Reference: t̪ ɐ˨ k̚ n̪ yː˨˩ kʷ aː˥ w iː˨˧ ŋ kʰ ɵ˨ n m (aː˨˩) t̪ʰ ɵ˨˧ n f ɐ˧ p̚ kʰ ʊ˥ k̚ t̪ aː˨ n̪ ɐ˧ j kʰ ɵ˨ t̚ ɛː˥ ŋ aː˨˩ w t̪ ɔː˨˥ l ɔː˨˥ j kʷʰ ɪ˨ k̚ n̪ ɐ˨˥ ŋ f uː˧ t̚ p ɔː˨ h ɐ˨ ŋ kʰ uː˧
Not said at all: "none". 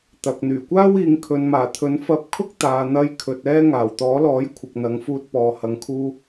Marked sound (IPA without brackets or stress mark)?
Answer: aː˨˩